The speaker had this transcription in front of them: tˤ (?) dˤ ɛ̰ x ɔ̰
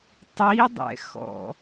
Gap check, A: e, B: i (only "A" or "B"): B